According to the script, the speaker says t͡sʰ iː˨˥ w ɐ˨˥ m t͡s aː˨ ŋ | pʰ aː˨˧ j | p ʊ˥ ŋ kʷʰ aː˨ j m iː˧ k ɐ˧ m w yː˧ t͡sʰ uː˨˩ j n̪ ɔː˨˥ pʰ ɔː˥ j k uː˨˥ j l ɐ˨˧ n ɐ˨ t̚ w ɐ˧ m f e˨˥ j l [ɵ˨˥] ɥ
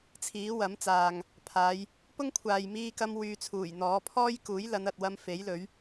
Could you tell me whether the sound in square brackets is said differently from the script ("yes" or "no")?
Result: no